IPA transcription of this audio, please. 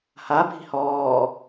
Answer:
habʱi̤ hɔː

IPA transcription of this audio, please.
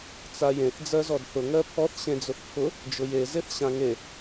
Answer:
t͡sajẽθ d͡zɜzɔdθʊ ŋɜpʰɔθ ɕẽd͡zʊθpʰʊ | d͡ʒʊje zeθɕãŋe

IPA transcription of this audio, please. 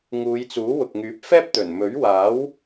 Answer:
ŋuː˨˧jt͡suː˨˥ wʊ˨k̚ŋyː˨˥p̚fɛː˥p̚ t̪ɵ˨˩nmɵ˨˥ɥwaː˨˥w

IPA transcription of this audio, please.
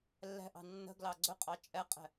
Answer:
lːɛ̤ʔɑ̤ nːə̤ ɡlɑɡ͡ǀɵqʼɑ t͡ʃʼɛqʼɛ̤

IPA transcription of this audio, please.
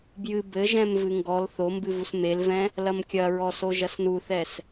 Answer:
bjɨ bɘʒɛ̃m vɨŋɡɔl θombɨvus melvɛ̃ | lɐmkʲɐɹɔ soʒɐsnuθɛs

